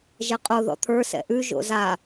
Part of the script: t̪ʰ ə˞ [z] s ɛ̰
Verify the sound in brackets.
incorrect: none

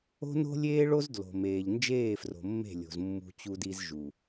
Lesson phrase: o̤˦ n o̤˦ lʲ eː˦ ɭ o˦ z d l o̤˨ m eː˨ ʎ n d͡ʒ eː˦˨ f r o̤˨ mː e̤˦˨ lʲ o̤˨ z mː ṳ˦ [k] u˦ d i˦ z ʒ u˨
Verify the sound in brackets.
incorrect: t͡ɕ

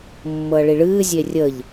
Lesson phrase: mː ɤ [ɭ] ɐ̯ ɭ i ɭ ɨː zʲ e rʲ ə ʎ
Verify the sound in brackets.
incorrect: none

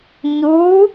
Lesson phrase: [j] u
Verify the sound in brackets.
incorrect: ɲ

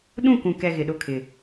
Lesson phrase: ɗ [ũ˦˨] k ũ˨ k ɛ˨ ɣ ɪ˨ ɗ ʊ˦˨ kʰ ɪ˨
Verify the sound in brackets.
correct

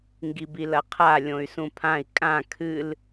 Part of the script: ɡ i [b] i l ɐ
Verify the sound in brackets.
correct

